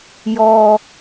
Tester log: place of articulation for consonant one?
palatal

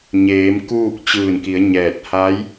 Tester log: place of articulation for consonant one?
palatal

